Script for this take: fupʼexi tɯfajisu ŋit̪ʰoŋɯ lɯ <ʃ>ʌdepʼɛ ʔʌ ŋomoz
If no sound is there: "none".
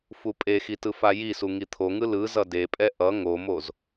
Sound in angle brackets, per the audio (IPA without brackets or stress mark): z